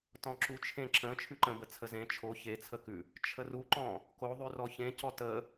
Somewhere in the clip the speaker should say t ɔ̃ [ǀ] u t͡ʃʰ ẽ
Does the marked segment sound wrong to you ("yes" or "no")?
yes